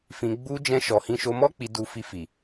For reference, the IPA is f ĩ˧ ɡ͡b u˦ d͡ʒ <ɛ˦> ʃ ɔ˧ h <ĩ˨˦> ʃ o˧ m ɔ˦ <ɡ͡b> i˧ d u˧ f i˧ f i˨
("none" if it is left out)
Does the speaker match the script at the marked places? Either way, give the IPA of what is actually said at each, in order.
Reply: ɛ̃˦, ĩ˧, k͡p

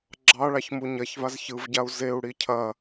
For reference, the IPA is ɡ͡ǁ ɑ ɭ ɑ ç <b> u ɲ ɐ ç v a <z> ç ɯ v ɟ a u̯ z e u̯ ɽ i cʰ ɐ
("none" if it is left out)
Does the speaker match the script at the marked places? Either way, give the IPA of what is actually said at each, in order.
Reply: m, z

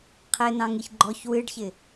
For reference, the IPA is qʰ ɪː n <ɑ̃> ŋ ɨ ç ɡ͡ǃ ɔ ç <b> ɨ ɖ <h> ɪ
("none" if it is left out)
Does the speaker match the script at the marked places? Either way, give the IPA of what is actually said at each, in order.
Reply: ɑ̃, w, ç

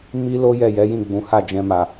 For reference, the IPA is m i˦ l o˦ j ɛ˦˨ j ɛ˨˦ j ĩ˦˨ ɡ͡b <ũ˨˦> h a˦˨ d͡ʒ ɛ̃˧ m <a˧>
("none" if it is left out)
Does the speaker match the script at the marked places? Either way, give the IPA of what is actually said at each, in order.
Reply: ũ˨˦, a˨

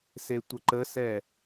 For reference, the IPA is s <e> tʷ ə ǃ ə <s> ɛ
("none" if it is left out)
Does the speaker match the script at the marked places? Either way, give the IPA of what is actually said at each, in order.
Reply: e, s

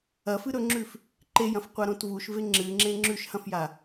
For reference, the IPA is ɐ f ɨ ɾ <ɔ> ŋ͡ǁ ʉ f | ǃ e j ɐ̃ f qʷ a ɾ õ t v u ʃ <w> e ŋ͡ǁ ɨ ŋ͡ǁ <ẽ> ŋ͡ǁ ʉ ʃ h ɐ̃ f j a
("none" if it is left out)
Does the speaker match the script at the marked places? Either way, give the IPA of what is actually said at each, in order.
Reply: ɵ, v, ẽ

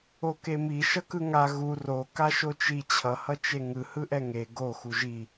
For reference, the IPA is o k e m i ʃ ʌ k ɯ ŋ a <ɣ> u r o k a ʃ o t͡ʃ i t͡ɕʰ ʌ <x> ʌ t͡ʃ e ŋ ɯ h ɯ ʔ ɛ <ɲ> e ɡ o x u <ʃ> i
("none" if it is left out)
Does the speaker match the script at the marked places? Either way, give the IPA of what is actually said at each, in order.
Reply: ɣ, h, ŋ, ʒ

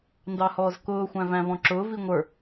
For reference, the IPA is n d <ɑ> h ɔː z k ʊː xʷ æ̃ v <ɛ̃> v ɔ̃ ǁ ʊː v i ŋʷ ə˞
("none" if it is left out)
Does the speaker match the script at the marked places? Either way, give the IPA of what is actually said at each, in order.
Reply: ɑ, æ̃

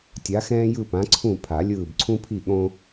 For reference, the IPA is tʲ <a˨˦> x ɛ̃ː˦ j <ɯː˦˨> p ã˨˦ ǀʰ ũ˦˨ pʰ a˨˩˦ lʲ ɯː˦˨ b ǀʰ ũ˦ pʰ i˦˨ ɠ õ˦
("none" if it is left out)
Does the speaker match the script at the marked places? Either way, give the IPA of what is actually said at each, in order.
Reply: a˨˦, ɯ˦˨

